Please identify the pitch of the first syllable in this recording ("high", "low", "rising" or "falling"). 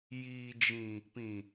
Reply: low